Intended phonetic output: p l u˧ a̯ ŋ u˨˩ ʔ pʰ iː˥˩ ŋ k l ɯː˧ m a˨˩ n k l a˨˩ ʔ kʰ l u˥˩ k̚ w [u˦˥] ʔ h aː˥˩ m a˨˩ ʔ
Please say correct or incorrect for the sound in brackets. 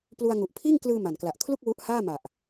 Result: correct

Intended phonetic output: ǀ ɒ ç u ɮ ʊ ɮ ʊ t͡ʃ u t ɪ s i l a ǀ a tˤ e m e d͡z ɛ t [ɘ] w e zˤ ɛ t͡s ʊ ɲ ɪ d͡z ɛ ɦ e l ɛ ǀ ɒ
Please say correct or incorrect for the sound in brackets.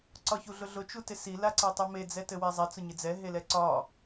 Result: correct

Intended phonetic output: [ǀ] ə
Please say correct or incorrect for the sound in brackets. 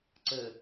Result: correct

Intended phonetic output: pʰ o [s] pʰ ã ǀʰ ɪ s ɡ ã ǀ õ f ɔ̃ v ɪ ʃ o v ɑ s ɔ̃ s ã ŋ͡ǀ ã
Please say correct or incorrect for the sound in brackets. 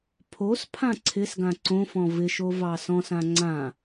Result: correct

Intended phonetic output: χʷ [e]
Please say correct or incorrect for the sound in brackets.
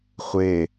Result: correct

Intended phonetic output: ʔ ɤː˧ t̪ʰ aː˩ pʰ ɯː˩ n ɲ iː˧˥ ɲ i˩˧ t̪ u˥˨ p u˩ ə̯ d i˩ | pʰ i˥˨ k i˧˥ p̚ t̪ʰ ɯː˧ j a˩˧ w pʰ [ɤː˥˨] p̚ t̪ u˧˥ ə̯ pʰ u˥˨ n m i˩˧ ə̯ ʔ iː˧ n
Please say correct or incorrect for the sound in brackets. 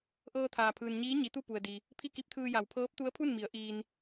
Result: incorrect: ɤː˧˥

